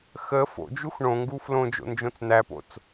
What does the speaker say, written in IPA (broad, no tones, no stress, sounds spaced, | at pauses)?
x ə f o̰ d͡ʒ u x ɳ õ ŋ ɡ u f l õ d͡ʒ o̰ n d͡ʒ õ t͡s n̪ æ p o̰ t͡s